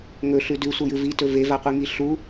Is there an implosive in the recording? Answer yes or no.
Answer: no